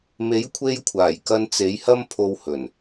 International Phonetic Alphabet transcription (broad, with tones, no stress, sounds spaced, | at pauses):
m e˨˥ j kʷʰ e˧ j kʷʰ aː˨˩ j k ɐ˧ n t͡s e˨˥ j h ɐ˥ m pʰ o˧ w h ɵ˨˩ n